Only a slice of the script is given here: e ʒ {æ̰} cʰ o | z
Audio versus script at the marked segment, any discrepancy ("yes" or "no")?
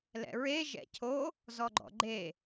yes